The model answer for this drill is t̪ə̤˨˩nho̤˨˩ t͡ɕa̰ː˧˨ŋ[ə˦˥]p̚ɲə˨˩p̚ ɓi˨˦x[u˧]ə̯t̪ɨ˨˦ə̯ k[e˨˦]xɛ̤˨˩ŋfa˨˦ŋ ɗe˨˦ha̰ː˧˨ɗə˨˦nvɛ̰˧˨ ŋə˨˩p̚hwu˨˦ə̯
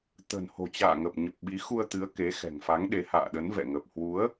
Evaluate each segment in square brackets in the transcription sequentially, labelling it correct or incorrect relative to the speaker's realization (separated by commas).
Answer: incorrect, correct, correct